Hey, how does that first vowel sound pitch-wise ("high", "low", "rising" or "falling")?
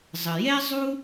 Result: low